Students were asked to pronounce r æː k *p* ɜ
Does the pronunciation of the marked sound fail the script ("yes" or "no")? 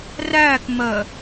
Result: yes